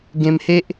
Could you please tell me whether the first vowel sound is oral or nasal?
nasal